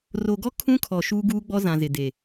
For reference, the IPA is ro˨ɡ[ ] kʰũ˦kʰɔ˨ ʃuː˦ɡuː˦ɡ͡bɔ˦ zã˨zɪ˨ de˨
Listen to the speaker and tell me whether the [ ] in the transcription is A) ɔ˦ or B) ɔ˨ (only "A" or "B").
A